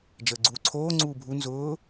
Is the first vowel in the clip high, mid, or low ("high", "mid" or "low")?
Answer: mid